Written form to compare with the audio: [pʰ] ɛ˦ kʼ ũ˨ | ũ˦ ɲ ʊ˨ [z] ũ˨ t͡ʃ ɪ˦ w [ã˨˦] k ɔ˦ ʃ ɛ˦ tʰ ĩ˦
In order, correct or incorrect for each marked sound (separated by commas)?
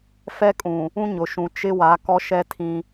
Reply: incorrect, incorrect, incorrect